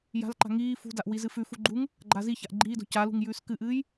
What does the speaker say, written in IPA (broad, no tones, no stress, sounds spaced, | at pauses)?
j a̤ l ǃ a̤ ŋ iː f ṳ d a ʔ w i z ɨ f ʉ f u ɡ͡ǃ u ŋ | ɡ͡ǃ a z i ç a ʔ ɡ͡ǃ iː d o̤ c a l ṳ ŋ j ʉː s k ɨ ʔ ɨː j